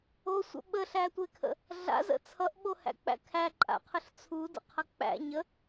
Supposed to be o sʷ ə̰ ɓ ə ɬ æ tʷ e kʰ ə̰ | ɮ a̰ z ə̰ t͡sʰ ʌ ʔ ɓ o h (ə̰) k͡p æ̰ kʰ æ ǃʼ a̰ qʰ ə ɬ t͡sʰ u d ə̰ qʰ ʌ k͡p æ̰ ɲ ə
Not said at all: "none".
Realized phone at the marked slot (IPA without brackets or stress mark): æ̰